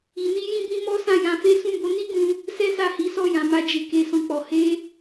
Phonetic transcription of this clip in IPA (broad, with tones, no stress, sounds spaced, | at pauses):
i˧ n i˦ j ĩ˦ b ĩ˦ m ɔ˦ s ã˦˨ j ã˧ f e˦ s ũ˦˨ b o˨˦ n i˦ ɡ ũ˧ | s ɛ˦ s a˦˨ h i˨˦ s ɔ˦˨ j ã˨ m a˧ d͡ʒ e˨ k e˧ s ɔ̃˧ k͡p ɔ˨ h e˧